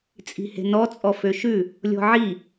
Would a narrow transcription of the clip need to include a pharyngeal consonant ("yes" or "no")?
yes